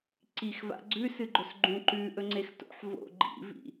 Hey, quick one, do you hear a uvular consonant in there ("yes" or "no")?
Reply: no